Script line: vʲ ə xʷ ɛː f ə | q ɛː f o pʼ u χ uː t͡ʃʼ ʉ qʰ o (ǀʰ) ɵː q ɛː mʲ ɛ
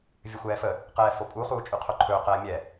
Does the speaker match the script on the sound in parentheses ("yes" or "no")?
no